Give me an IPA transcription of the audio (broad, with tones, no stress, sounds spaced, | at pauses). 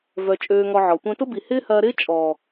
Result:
v œ˨ t͡ʃʼ øː˧ ŋ ɔ˧ ʕ ɔ˨ tʷ œ̃˧ t ʊ˦ b i˨ h ɪː˦ h ɐː˧ ɾ ɪː˦ t͡ʃʼ ɔː˨